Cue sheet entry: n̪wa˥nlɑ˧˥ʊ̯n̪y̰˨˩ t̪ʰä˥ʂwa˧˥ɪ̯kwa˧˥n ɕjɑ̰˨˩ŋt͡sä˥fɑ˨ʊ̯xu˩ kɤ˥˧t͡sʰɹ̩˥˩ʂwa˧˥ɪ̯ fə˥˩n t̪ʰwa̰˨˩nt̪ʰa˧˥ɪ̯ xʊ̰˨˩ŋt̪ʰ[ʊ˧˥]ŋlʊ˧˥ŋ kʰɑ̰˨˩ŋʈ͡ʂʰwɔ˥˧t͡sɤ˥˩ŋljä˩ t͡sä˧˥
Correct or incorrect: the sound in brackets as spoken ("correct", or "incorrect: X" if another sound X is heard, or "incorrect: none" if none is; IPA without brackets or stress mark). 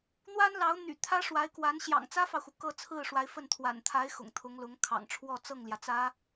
correct